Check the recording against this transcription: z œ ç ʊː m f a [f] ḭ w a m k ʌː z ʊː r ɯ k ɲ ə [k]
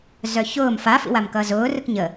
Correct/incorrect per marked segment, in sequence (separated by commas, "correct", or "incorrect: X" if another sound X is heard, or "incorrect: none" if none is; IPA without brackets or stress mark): correct, incorrect: none